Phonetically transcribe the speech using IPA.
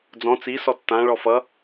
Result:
d͡z ɔ̃ t͡s i s ɔ tː ã ɭ ɔ f ʌ

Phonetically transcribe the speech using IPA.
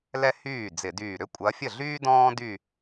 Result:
l ɛ˥ h yː˥˩ d͡z ɪ˧˩˧ d yː˧˩ ɾ ʏ˥ kʷʼ ɐ˨˦ fʲ ə˥˩ ɮ yː˥ d ɔ̃ː˥ d y˥˧

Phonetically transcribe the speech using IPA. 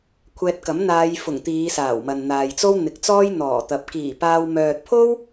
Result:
kʷʰ ɛː˧ t̚ k ɐ˨˥ m n̪ aː˨˧ j f ʊ˨˩ ŋ t̪ iː˨˧ s aː˨˩ w m ɐ˨ n n̪ aː˨ j t͡s o˥ w n̪ ɪ˨˥ k̚ t͡s ɔː˥ j n̪ ɔː˨˩ t̪ ɐ˨ p̚ k iː˨˩ p aː˧ w m œː˨ t̚ pʰ o˥ w

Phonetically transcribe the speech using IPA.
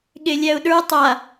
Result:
ɠ e lʲ æ ʊ̯ ɗ ə˞ tˤ a

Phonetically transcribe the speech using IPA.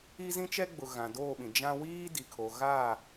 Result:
i˦ z ĩ˦ t͡ʃ ɛ˦ ɡ͡b ʊ˨ ɣ ã˨ d oː˦˨ ɓ ĩ˨ d͡ʒ ã˦ w iː˦ d i˨ kʰ o˨ ɣ a˦˨

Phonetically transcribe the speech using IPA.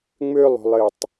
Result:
ŋ͡m ø lˠ o̤ lˠ ɘ tˤ

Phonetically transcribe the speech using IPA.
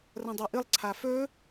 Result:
r ɐ̃ dˤ u ʔ ɨ lˠ ǀʰ a f ɵ

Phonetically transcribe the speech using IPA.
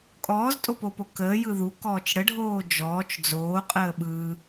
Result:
kʼ ɔː z tʼ o p o p o k əː j ɯ ð u k ɔː t͡ʃ ɽ ə ɖʱ oː d͡ʒ ɔː t͡ʃ d͡z oː qʼ əː ɓ ɯ

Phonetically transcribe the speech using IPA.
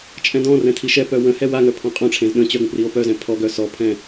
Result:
t͡ʃʼ ɛ̃ d ɔ̃ r ɛ̃ tʰ i ʃ ɛ p œ w ə̃ h ɛ w a ŋ œ pʰ ɔ̃ qʼ ɔ̃ ʈ͡ʂʰ ẽ z ɗ ə̃ t͡ɕ œ ɡ ə̃ p r i o̯ p œ z ɛ̃ pʰ ɔ ɡ œ s ɔ pʰ ɛ̃

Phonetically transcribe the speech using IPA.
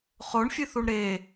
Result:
χ o ɳ fʲ ɨ θ u ɳ ɾ e

